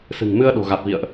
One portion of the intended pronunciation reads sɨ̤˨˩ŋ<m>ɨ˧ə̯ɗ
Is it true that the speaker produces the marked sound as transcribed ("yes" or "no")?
yes